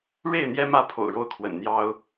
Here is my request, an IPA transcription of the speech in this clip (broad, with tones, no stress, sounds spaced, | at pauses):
ɻ e˥˨ ɪ̯ n̪ j ɛ˦ m ä˥˨ pʰ o̰˨˩ ʊ̯ ɻ o˥˨ ʊ̯ kʰ w ə̰˨˩ n n̪ j ɑ˦ ʊ̯